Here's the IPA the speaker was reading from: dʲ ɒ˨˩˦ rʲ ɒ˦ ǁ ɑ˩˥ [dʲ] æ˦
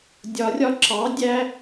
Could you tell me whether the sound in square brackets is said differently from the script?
no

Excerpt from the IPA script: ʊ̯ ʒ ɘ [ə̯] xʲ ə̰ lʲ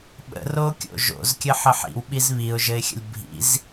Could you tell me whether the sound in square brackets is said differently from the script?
yes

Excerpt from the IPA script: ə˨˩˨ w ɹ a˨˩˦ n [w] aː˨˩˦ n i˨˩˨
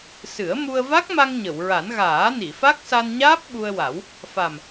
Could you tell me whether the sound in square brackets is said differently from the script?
yes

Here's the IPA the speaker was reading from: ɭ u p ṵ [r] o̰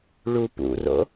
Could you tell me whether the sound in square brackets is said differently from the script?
no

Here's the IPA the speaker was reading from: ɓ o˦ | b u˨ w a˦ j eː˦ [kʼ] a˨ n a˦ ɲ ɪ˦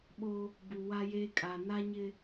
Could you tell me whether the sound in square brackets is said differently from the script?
no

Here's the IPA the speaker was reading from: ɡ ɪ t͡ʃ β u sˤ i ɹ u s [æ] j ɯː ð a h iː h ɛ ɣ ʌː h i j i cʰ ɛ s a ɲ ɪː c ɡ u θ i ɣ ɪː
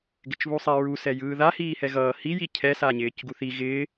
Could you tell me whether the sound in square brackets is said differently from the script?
yes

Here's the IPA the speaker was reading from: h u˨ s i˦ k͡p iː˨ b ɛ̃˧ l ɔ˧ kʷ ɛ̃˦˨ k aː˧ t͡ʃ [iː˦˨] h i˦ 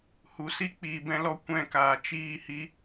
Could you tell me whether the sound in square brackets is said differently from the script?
no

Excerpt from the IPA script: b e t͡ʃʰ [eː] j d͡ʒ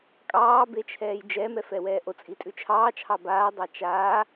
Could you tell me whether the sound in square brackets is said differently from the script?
yes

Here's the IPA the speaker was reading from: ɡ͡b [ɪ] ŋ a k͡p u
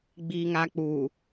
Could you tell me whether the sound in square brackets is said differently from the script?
yes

